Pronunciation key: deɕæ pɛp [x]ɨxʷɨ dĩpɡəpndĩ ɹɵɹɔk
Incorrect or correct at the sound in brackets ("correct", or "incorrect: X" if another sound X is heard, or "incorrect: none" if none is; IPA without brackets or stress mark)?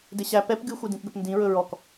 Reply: incorrect: ɡ